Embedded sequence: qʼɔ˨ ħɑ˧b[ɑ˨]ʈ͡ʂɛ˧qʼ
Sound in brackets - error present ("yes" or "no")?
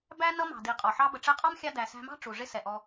yes